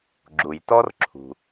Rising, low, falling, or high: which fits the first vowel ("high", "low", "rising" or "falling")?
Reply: low